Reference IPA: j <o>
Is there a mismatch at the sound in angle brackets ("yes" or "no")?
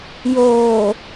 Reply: yes